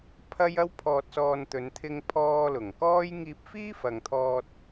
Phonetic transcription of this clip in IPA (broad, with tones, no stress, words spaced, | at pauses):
pʰɐ˥j ɐ˥wpʰɔː˧t̚sɔː˧n t̪ɵ˨˧nt̪ʰɪ˧ŋpʰɔː˧ lʊ˨˩ŋkɔː˥j ŋiː˧p̚fiː˥fɐ˨ŋt̪ʰɔː˧t̚